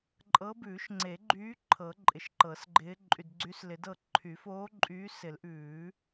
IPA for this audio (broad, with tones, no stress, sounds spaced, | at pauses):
ǃʼ ɤ˧˥ b ʉː˨˩˦ ʃ ŋ͡ǀ e˨˩˦ ɡ͡ǃ yː˧˥ ǃʰ ɤ˨˩˦ ǃʼ ɪ˨ ʃ ǃ ɤ˨˩˦ s ɡ͡ǃ ɪː˧˥ ǃʼ y˨ d ɡ͡ǀ y˧˥ s l ɪ˨˩˦ d ɤ˥˨ ǃʰ y˨˩˦ f oː˧˥ ǃʼ yː˧˥ s ɪ˨˩˦ l ʔ ʉː˨˩˦